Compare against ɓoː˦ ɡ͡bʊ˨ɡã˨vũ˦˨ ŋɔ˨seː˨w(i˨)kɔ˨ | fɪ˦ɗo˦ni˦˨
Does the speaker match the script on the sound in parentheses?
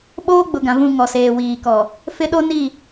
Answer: no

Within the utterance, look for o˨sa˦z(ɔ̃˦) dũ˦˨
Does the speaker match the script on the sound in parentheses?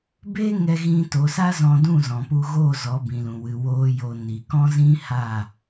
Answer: no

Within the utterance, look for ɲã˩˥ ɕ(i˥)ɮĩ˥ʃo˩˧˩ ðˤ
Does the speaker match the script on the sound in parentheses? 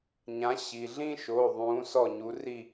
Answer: no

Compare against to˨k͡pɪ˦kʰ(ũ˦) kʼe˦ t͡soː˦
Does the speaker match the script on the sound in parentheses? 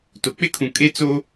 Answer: no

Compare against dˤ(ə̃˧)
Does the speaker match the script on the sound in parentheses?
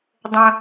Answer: yes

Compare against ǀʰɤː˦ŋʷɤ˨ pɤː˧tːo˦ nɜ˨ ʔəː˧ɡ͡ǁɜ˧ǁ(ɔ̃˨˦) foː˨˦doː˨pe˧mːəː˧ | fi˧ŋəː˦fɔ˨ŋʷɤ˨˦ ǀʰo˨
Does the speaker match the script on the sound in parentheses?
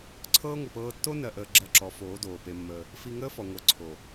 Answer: no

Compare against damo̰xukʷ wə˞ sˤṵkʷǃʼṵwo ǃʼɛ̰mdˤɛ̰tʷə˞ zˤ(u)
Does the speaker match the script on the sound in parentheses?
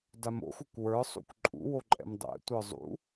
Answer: no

